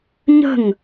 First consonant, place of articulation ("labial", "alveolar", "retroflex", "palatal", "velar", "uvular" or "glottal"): palatal